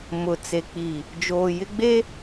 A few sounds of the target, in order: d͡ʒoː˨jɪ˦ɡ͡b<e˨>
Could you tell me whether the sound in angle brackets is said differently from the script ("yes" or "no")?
yes